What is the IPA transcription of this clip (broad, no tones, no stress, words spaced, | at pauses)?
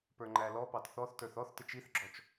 pə˞ŋ͡ǃælɔpɑt θɔθtə˞θ ɔθ tɪt͡ʃiθɡ͡ǁɔt͡ʃ